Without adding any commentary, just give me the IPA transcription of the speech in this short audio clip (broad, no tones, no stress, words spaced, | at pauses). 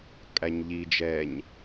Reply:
kʼæɲʎi d͡ʒɛɲ